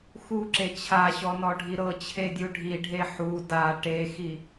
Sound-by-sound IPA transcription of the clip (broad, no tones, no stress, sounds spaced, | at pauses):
x u ǁ e t͡ɕʰ a ɕ ɔ n ɔ ɖʱ i ɾ ɤ t͡ɕʰ e dʲ u ɖʱ i ɖʱ e ħ u d a ʈ e x i